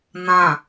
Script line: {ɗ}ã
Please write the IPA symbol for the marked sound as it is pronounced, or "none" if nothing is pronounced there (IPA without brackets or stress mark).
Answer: n̪